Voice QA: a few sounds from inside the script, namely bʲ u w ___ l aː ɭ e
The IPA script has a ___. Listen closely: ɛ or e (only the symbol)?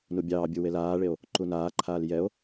e